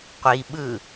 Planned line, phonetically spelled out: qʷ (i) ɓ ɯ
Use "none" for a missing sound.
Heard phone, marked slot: i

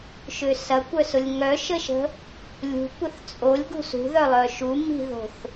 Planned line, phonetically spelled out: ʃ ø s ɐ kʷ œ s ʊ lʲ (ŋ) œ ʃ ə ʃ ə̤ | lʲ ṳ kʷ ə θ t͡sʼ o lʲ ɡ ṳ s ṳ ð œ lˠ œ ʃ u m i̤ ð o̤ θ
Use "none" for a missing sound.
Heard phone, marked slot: ŋ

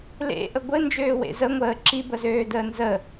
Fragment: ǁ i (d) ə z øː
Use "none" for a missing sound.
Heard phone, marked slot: b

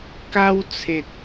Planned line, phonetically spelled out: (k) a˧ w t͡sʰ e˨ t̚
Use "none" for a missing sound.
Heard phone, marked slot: k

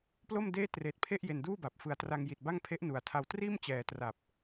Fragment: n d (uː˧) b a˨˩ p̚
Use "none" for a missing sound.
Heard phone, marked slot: uː˥˩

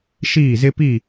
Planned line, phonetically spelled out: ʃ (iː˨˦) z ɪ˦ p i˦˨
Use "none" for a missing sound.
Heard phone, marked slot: iː˦˨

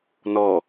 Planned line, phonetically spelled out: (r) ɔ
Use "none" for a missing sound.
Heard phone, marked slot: n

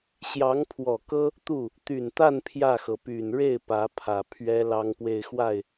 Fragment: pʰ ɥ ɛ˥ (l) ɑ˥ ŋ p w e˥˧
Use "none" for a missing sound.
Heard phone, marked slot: l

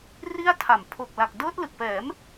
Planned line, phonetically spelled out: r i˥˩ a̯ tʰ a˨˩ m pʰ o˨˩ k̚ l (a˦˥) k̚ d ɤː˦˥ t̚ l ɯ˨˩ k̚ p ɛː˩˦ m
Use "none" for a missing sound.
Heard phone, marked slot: a˨˩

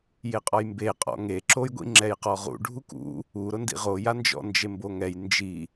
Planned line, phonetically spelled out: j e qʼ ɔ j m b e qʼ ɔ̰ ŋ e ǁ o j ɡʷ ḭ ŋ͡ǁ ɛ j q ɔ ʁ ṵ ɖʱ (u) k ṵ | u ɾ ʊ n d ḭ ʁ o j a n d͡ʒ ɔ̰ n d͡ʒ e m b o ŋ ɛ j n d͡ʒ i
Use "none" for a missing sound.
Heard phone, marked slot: u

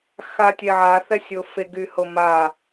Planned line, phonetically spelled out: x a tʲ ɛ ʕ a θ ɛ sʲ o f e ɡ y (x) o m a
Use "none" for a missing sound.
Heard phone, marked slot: h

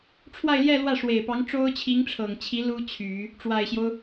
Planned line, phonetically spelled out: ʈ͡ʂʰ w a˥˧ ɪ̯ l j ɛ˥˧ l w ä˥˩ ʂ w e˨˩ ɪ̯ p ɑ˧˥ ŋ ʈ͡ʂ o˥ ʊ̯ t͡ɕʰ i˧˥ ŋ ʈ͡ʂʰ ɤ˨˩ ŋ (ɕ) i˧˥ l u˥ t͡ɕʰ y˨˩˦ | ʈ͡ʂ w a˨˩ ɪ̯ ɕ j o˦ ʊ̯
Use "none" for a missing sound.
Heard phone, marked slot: t͡ɕʰ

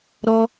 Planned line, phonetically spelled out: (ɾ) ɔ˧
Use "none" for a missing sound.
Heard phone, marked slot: ɾ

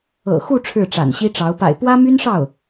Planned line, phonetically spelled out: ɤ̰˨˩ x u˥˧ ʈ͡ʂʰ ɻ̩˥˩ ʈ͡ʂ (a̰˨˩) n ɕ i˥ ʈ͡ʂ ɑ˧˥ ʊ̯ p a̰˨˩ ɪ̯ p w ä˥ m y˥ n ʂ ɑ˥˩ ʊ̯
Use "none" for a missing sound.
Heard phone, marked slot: a̰˨˩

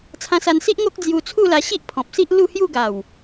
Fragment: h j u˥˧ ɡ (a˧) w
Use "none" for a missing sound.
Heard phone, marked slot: a˨˩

